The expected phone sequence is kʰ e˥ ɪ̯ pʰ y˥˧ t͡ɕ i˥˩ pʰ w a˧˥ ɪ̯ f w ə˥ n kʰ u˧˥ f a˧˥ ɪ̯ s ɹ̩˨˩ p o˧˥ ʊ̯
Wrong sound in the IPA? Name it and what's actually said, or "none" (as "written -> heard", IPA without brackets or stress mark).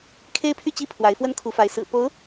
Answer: none